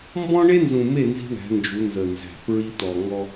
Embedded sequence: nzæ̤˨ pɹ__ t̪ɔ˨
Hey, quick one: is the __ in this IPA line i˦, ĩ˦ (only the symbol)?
i˦